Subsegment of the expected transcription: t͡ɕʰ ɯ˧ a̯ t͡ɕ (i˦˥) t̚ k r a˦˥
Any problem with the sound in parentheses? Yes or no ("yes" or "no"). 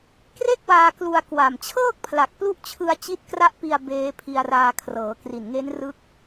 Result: no